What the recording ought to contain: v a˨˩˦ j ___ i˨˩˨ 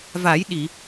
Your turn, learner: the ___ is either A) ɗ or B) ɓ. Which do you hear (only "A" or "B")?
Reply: A